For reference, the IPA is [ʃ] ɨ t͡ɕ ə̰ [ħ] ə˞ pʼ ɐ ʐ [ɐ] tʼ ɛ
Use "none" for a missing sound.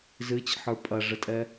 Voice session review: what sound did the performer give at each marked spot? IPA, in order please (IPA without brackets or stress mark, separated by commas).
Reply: z, ħ, ə